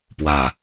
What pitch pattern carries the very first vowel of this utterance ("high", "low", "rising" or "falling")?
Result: low